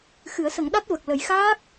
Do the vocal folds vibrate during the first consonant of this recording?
no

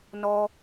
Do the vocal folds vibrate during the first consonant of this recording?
yes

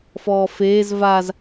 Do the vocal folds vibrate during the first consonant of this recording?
no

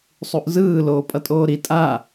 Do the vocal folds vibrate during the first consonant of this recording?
no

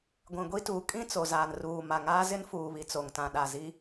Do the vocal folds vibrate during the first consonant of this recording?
yes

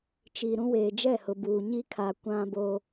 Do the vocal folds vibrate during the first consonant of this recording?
no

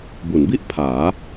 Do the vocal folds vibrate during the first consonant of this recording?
yes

